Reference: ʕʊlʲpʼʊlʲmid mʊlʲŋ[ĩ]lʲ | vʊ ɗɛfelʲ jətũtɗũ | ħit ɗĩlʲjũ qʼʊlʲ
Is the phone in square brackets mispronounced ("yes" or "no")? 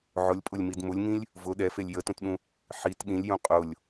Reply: no